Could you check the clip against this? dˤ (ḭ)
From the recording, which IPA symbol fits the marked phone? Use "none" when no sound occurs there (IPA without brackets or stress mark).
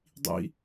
ḭ